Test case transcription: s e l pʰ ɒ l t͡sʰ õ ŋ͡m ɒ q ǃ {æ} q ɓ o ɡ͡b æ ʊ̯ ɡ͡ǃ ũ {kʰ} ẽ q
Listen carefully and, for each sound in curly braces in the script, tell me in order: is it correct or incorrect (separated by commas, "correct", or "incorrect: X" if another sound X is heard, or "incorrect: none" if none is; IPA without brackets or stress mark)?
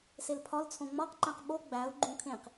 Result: incorrect: æ̃, correct